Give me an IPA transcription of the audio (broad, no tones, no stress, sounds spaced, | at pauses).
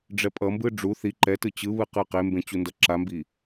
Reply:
ɖ͡ʐ ɛ pʼ ʌ m b ɯ ɖ͡ʐ u θ i ǃ ɛ t ɯ t͡ɕ ɯ β ɯ q ɯ q e m b ẽ t͡ɕ u n d ʌ ǁ a m b i